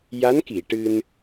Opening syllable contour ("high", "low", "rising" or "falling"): rising